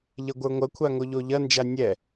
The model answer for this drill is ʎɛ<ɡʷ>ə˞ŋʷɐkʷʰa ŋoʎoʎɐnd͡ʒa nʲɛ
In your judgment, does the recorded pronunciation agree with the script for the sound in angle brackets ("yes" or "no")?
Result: yes